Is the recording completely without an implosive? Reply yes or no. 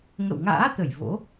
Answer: yes